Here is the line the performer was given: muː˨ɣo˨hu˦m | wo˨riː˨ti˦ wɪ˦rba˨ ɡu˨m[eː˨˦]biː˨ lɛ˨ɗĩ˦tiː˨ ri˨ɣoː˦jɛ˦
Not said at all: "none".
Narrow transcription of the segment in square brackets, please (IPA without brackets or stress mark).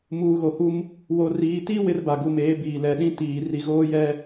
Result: eː˨˦